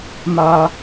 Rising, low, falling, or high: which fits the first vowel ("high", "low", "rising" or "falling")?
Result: high